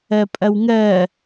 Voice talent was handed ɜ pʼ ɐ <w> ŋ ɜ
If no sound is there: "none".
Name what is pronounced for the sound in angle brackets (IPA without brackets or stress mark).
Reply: w